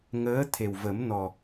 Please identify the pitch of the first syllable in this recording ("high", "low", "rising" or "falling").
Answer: rising